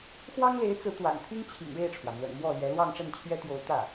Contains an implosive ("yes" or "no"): no